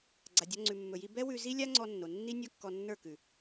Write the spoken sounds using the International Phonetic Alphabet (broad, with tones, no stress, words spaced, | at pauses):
ɡ͡ǀa˧dʲɔ˦ŋ͡ǀʉ˧ mːɵ˧ji˦ bɛ˦wʉ˧zi˦lʲa˦ ŋ͡ǀɔ˧nːo˨nːi˦ nʲɔ˦kːɔ˧nːə˞˦˨kʉ˨